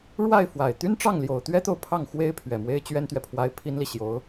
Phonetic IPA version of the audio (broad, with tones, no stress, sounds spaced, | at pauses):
ɻ w a˥˩ ɪ̯ f w a˨˩ ɪ̯ t̪ y˥ n ʈ͡ʂ ɑ˥˩ ŋ l j o˨˩ ʊ̯ t̪ ɥ ɛ˥ t̪ o˨ ʊ̯ pʰ ɑ˥˩ ŋ x w e˥ ɪ̯ pʰ ɥ ɛ˨˩ m w e˥ ɪ̯ t͡ɕ ɥ ɛ˥ n t̪ ɥ ɛ˨ pʰ w a˥ ɪ̯ pʰ i˥ n l i˨ ɕ j o˧˥ ʊ̯